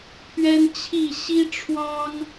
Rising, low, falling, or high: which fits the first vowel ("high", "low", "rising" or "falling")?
high